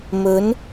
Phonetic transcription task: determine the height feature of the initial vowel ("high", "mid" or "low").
mid